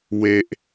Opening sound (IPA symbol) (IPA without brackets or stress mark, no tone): w